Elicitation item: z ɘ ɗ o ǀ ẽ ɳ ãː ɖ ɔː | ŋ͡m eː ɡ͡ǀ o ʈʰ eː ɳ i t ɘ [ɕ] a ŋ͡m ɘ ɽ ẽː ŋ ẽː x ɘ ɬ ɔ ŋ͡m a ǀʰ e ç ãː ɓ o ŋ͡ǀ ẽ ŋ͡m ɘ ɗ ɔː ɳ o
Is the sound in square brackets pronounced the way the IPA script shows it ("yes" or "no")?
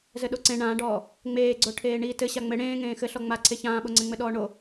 yes